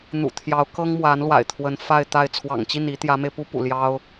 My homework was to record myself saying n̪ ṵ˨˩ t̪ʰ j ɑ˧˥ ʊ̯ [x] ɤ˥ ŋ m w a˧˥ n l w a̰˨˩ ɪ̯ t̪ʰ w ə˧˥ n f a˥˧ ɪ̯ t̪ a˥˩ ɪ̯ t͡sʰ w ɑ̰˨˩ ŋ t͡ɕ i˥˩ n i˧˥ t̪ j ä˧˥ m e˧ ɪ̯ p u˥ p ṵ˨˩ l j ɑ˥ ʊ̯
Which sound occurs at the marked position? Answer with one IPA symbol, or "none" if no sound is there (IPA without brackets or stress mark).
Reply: k